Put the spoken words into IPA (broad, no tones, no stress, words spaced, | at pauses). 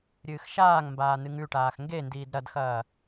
ɾʲɨːxʃaːŋmbaː nɨŋʉʈaːx ŋɡendiːd ɾɐdxɐː